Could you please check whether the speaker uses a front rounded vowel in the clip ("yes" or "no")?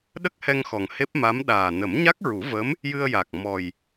no